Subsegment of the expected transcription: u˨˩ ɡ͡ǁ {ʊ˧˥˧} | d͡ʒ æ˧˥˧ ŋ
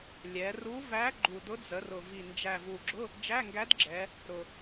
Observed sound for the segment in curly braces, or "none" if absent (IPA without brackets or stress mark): ʊ˧˥˧